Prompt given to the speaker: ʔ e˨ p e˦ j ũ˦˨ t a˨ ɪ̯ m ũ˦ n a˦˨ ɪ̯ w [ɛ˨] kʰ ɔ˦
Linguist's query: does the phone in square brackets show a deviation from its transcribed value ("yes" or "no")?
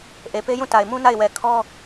no